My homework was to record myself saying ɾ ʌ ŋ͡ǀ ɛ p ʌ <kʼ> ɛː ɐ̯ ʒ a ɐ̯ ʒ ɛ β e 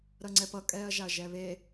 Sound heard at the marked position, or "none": kʼ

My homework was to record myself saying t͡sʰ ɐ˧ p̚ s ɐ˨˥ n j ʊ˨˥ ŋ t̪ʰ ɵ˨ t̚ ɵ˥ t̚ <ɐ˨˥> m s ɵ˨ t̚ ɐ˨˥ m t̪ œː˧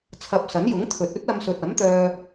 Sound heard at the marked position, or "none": ɐ˧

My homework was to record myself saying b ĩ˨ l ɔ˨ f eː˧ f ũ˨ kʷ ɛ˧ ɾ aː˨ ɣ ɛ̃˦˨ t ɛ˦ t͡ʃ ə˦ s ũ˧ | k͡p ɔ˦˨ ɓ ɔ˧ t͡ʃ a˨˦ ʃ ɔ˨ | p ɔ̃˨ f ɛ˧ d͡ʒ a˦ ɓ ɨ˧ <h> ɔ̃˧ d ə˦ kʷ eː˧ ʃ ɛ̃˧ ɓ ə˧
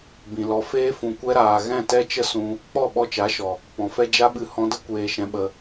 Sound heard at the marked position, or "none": h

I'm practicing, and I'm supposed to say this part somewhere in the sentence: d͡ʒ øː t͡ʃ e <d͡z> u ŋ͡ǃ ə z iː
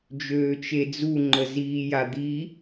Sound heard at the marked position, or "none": d͡z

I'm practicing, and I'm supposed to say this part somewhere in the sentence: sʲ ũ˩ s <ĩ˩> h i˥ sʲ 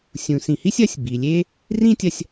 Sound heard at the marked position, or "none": ĩ˩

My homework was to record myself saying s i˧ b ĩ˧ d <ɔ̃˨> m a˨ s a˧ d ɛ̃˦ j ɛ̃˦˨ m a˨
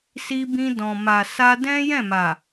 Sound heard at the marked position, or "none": ɔ̃˨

